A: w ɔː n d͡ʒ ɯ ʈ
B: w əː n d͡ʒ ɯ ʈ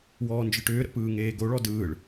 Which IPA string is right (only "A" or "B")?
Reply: A